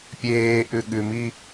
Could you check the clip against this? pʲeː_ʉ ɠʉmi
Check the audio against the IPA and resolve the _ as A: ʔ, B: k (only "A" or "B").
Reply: A